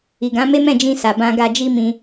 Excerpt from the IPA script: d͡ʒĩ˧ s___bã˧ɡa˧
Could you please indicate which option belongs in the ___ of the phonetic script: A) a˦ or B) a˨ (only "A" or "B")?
B